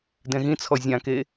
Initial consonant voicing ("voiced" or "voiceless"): voiced